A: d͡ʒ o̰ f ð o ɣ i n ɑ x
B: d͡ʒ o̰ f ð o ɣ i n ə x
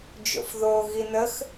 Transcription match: B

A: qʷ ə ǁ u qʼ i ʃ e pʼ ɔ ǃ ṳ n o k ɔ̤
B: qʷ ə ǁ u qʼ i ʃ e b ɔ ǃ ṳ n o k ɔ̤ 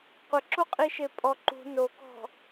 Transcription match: A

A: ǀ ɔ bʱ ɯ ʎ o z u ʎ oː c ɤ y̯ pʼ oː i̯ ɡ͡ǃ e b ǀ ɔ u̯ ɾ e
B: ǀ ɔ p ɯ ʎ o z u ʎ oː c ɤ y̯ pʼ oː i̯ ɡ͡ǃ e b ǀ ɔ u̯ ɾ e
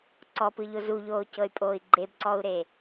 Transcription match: B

